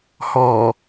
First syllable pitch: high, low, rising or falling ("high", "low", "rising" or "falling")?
low